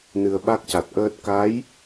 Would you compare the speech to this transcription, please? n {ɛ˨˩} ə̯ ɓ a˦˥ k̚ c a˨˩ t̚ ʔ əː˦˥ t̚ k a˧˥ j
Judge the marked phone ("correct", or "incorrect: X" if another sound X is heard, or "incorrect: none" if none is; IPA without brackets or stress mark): incorrect: ɨ˨˩